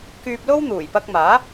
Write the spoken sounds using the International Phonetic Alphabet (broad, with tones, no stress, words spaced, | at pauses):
kyː˧p̚ lo˥w n̪uː˨˩jpɐ˧k̚maː˨˥